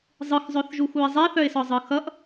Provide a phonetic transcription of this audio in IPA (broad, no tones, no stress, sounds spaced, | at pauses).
zˤ ɯ x zˤ œ θ ʒ u x u ɪ̯ zˤ ɛ θ œ ɪ̯ s ɒ zˤ ɯ x ʌ ʔ